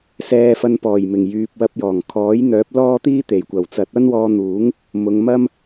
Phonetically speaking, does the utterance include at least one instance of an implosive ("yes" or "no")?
no